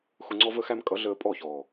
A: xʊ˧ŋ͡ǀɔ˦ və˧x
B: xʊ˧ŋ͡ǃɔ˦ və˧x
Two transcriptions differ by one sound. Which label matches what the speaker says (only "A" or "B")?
A